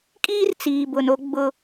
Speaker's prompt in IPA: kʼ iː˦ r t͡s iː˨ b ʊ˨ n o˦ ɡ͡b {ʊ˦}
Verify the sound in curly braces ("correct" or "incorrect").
correct